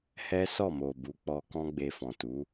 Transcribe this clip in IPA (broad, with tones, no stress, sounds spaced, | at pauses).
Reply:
h ɛ˦ s ɔ˦˨ m o˨ b u˨˦ k͡p ɔ˧ k ɔ̃˦ ɡ͡b e˧ f ɔ̃˨ t u˨˦